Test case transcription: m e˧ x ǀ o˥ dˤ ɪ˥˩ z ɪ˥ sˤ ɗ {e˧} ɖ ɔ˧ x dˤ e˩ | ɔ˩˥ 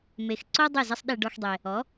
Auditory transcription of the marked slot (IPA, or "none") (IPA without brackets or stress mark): e˧